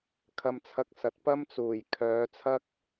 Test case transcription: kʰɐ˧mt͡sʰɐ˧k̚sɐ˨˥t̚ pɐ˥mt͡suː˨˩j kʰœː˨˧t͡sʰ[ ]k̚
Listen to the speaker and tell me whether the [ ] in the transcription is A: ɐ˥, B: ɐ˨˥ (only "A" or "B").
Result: A